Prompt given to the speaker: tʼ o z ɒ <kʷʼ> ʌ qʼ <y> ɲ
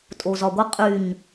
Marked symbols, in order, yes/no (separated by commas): no, yes